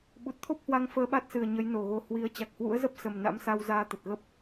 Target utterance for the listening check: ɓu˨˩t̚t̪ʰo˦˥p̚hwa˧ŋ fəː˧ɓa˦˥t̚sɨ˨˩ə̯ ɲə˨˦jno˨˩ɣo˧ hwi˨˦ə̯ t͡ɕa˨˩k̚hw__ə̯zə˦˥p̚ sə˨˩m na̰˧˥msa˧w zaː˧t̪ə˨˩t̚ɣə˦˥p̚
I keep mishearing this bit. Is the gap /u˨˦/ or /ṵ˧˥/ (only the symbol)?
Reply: ṵ˧˥